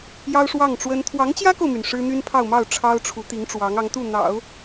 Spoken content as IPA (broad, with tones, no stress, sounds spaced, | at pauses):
j ɑ˥ ʊ̯ ʂ w ɑ˥˩ ŋ ʈ͡ʂ w ə˥ n t̪ʰ w ɑ˧˥ ŋ t͡ɕ j ä˥ k o˨ ʊ̯ m y˩ n ʂ ɻ̩˥ n̪ y˥ n pʰ ɑ˥˧ ʊ̯ m ɑ˥˩ ʊ̯ ʈ͡ʂʰ ɑ˥ ʊ̯ ʈ͡ʂʰ u˧˥ t̪ i˧˥ ŋ ʈ͡ʂ w ɑ˧˥ ŋ ɑ˧˥ ŋ t̪ u˥˩ n̪ ɑ̰˨˩˦ ʊ̯